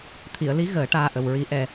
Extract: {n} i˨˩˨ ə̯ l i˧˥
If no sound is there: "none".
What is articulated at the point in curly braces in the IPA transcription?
t̪ʰ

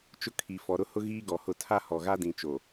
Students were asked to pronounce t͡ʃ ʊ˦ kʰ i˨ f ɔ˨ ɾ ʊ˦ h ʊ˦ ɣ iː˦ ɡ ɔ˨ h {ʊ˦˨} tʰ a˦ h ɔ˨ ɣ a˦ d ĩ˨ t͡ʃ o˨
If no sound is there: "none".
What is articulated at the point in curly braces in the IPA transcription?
ʊ˦˨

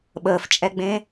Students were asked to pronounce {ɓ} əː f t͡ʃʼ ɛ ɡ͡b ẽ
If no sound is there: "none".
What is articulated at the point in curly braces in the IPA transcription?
ɓ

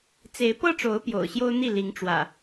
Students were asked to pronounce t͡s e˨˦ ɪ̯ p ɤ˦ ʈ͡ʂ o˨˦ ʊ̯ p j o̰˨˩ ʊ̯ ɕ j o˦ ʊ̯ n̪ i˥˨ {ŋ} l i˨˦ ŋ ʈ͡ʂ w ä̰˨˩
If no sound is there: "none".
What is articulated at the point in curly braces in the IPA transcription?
none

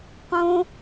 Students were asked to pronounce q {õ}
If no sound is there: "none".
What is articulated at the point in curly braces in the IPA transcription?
õ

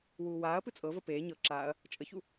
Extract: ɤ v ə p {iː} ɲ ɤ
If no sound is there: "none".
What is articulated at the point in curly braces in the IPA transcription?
eː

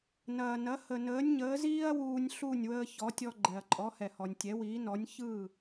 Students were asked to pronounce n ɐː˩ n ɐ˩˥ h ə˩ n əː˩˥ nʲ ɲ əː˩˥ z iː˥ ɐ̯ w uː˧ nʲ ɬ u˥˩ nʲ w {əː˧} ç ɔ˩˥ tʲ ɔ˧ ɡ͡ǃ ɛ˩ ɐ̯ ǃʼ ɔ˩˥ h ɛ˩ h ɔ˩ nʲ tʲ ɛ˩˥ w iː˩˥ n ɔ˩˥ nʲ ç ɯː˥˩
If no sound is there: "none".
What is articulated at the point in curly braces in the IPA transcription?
əː˧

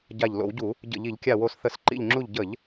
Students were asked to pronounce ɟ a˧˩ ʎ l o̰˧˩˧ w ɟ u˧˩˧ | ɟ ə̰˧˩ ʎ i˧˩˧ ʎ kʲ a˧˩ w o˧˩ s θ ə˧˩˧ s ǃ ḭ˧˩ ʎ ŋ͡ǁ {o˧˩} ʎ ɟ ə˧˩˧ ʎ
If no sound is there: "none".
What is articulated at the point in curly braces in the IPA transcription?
u˧˩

